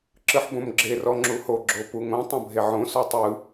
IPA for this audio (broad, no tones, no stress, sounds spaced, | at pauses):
ǁ ɯ ħ b õ m ɡ͡ǁ e r ɔ ŋ͡ǁ u h o ɡ͡ǁ o p u ŋ õ tˤ õ bʱ e ʕ õ s ɔ tˤ ɯ